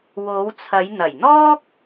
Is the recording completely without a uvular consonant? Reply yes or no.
yes